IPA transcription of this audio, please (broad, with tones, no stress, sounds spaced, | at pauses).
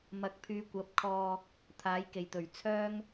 m ɐ˨˥ k̚ pʰ yː˨˧ kʷ ɐ˨˥ p̚ kʰ ɔː˧ | t̪ʰ aː˨˧ j k e˨˩ j t̪ ɵ˨˩ ɥ t͡sʰ œː˥ ŋ